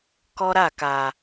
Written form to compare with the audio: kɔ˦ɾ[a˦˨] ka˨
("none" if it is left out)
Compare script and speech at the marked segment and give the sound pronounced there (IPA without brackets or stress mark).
a˦˨